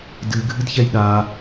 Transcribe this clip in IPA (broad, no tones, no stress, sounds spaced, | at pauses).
d ɨ ɡʱ ɨ d ç ɛ j ɗ a